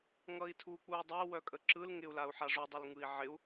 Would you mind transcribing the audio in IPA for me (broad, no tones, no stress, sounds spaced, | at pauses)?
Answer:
ŋ ʌ i̯ tʰ uː k͡p uː dˤ œ w œ kʼ ə ǁ ɯ l ŋ ɪ u̯ l a u̯ ħ a ʐ u dˤ ɪ l ŋ ɯ i̯ ʕ ɪ u̯